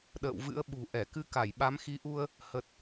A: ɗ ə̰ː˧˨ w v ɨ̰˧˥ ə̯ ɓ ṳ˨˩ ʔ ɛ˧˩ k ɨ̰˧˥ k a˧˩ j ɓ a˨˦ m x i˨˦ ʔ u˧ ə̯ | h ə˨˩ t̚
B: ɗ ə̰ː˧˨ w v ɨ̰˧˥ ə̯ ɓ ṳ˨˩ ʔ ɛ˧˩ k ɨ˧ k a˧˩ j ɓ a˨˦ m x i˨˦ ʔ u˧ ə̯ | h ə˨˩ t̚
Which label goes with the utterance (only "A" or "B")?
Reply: B